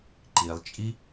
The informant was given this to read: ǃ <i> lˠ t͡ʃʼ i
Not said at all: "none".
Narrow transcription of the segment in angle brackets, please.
i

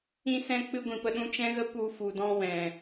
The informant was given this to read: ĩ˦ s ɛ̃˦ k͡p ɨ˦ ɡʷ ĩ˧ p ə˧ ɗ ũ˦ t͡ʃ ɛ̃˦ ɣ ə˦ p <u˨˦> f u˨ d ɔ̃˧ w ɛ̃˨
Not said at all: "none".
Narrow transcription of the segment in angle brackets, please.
u˧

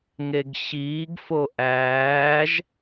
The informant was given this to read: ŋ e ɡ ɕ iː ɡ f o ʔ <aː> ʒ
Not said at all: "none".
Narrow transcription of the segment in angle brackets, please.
æː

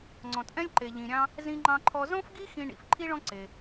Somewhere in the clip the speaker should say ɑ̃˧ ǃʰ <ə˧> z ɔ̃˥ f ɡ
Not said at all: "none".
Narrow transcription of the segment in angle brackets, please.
ɔ˧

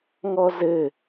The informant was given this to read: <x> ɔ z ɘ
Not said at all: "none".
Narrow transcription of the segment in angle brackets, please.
ŋ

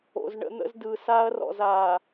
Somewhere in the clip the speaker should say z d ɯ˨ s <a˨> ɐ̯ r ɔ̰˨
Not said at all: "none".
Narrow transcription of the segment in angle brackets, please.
a˦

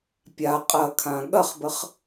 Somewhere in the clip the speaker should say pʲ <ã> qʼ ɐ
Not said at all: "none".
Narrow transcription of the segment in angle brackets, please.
a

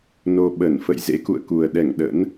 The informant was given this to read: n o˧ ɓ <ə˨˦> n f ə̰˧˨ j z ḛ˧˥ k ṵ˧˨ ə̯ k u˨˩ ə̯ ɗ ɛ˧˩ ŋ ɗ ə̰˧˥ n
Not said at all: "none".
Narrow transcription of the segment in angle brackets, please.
ə˧˩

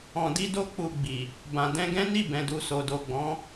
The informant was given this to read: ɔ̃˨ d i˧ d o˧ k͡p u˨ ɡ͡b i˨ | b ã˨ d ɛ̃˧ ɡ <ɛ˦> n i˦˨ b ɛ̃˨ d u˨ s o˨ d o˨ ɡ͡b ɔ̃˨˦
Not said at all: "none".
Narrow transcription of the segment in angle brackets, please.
ɛ̃˦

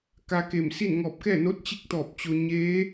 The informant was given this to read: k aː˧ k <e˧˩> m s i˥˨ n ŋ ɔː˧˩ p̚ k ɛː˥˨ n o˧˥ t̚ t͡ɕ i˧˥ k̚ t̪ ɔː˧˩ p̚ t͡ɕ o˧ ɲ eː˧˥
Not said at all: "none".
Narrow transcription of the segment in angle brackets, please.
e˧˩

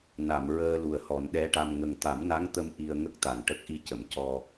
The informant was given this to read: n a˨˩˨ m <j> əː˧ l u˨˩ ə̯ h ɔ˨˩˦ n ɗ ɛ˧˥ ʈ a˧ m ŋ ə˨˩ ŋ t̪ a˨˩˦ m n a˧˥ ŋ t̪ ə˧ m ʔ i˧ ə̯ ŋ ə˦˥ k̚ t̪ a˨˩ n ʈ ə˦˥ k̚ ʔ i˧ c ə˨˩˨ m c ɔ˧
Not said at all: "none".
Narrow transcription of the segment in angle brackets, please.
ɹ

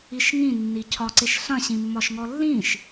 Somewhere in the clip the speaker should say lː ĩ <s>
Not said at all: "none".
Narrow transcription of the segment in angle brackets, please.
ʃ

